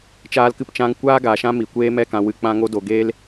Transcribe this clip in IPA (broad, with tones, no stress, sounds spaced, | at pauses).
t͡ʃ aː˦ l k ɨ˦ p t͡ʃ ã˦ ŋ kʷ aː˦ ɡ aː˨ ʃ ã˦ m i˨ kʷ eː˦ m ɛ˦˨ k ã˧ w ɨ˨ k͡p ã˧ ŋ o˧ d o˨ ɡ eː˦ l